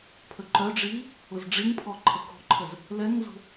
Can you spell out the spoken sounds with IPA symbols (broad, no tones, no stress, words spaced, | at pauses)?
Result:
pʰəǃœɖ͡ʐiː | ʊzɖ͡ʐiŋpʰɔ ǃʰəko̤ǃʰəz | lɛŋzo̤